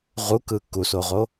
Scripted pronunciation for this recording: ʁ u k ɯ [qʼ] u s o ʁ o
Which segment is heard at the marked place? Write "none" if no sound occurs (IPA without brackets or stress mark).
k